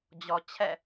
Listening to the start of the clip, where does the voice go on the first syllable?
low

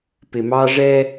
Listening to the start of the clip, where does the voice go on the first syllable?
low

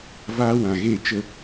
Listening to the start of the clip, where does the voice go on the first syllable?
high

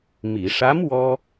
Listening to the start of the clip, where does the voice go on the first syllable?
low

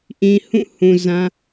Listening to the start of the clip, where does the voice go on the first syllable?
low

